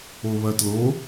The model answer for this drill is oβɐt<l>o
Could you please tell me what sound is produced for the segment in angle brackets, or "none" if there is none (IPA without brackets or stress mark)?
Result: l